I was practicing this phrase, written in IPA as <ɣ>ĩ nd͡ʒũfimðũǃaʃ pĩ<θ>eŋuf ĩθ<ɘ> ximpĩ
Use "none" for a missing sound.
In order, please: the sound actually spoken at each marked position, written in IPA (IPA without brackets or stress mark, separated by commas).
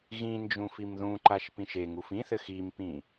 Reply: ɣ, ʃ, ɘ